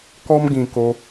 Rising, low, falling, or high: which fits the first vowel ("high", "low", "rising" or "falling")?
high